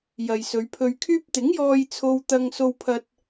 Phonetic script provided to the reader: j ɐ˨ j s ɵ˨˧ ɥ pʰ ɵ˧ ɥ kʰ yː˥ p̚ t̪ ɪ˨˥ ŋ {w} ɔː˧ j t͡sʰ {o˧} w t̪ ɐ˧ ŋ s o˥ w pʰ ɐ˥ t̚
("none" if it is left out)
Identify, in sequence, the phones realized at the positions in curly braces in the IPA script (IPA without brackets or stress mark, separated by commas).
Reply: j, o˧